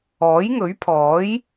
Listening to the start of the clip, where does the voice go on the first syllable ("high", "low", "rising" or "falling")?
rising